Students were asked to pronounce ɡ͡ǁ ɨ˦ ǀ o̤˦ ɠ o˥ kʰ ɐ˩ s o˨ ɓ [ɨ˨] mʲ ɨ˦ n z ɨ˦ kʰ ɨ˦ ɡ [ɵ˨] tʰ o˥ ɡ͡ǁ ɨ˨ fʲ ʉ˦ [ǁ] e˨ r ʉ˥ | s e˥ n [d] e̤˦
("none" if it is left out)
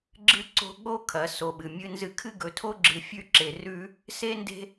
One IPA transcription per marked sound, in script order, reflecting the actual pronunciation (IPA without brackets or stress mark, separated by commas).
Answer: ɨ˩, ɵ˨, ǁ, d